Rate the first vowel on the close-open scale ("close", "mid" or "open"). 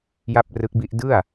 open